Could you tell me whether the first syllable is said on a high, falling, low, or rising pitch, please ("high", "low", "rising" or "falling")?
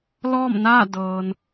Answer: falling